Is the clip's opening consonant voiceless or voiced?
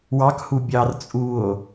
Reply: voiced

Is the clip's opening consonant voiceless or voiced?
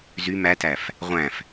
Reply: voiced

